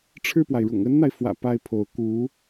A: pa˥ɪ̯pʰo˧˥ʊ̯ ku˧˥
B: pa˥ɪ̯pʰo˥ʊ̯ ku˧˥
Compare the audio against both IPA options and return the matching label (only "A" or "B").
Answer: A